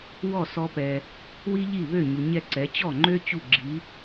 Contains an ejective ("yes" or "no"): no